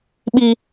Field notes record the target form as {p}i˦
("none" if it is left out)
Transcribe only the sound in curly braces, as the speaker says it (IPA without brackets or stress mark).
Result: ɓ